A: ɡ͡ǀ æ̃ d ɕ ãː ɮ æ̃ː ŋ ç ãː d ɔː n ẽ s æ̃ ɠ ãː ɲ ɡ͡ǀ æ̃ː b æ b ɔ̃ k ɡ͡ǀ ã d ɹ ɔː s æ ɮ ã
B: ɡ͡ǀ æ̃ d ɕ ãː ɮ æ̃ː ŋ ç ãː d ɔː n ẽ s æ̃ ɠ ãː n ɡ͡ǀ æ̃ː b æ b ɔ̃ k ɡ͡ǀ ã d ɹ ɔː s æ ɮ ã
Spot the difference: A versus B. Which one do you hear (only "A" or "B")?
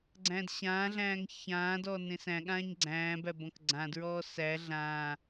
A